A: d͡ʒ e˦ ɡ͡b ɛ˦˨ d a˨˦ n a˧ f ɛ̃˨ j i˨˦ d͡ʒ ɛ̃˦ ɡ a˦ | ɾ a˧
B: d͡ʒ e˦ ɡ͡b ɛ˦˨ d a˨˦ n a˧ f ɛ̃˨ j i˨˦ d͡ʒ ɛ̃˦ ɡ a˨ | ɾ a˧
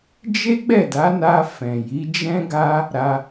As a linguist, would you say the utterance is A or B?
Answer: A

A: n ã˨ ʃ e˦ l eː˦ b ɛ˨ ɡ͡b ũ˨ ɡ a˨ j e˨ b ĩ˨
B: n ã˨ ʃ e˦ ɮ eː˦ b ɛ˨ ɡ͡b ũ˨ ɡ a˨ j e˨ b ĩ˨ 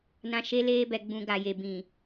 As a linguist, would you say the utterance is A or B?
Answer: A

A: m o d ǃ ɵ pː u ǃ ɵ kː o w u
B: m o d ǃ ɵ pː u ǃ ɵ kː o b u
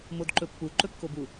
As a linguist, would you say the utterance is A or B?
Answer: B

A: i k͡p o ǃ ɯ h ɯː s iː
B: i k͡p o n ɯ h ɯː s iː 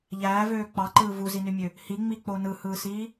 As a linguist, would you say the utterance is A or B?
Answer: B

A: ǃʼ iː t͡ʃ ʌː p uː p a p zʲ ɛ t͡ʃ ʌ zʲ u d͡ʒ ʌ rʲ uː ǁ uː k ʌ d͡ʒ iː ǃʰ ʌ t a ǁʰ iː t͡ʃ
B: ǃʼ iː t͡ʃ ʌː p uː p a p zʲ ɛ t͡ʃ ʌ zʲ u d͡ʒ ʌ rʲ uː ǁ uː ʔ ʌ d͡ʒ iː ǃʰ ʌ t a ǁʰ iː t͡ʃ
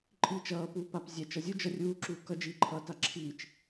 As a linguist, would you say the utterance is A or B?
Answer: A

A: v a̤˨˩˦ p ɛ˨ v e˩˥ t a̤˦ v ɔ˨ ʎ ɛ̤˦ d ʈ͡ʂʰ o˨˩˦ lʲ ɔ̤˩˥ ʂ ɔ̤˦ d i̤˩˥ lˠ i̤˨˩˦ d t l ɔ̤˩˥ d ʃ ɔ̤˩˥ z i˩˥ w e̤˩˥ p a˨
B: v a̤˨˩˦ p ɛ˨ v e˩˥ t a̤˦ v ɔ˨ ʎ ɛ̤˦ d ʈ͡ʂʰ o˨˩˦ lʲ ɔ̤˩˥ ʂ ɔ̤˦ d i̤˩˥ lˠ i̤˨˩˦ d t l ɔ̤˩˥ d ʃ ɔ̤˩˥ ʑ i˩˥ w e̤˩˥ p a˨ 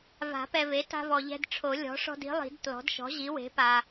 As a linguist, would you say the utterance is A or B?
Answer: B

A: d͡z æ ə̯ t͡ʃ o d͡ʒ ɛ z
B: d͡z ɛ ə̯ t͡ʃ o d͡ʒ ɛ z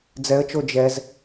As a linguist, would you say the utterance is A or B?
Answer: B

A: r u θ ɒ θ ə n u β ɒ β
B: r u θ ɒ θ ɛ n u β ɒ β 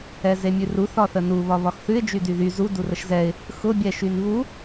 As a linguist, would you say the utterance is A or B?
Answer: A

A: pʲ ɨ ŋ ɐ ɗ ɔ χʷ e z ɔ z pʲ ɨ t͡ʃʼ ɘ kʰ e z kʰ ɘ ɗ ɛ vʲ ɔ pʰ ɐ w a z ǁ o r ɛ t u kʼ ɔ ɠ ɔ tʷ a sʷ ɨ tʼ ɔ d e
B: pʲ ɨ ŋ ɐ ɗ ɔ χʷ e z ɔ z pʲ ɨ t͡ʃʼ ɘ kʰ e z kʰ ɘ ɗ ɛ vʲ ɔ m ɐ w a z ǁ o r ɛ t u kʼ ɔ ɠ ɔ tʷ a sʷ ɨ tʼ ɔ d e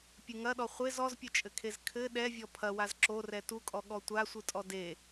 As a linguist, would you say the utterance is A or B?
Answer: A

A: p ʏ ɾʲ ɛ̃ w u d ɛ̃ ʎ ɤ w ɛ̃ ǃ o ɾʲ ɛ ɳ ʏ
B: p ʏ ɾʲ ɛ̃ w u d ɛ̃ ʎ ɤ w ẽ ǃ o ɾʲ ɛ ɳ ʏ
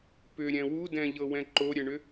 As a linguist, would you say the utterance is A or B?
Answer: A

